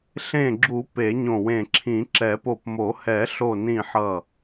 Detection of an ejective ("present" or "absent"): absent